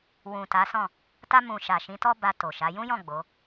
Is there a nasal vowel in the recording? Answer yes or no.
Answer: yes